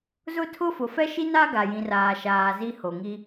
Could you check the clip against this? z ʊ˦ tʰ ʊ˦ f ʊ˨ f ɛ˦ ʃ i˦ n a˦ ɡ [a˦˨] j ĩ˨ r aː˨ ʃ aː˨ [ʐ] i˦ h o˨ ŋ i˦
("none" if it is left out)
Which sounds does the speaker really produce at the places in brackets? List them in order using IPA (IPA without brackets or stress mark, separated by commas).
a˨, z